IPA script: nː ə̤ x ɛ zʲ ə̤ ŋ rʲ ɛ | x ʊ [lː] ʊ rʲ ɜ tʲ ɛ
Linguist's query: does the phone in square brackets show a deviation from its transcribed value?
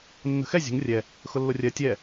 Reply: no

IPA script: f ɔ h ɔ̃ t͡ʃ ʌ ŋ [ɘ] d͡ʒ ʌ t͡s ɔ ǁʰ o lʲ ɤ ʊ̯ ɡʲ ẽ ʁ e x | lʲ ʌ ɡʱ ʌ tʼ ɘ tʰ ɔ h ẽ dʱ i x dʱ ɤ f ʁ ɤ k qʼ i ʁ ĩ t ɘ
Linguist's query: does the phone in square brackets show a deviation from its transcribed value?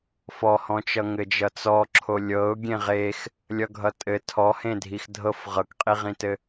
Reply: no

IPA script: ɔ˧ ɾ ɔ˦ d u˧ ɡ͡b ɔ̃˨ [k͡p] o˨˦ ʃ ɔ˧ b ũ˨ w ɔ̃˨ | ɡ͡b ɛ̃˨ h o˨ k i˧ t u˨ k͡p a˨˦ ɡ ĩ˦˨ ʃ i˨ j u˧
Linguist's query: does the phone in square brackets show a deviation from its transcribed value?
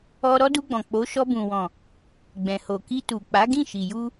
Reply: no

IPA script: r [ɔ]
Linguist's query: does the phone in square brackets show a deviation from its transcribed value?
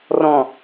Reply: yes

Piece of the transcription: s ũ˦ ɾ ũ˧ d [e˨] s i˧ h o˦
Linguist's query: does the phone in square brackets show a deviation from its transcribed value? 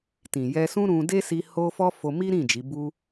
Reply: yes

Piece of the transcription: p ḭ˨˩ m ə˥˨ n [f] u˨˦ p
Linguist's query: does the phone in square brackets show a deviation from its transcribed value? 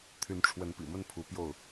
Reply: yes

